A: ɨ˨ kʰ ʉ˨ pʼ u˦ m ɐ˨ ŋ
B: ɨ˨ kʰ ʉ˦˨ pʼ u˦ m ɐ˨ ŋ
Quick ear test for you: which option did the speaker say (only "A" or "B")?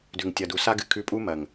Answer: B